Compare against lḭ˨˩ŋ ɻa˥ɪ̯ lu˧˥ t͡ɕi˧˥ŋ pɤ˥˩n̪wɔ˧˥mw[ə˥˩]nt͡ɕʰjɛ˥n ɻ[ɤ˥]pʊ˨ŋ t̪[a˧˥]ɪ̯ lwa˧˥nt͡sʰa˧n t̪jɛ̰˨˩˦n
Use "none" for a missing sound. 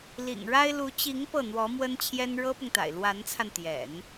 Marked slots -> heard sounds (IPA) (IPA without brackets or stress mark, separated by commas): ə˥, ɤ˥, a̰˨˩